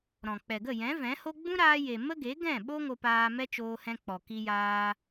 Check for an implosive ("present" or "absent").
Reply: present